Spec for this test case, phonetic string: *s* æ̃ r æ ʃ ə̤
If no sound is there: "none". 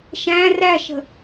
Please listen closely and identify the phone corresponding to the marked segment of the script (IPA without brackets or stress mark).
ʃ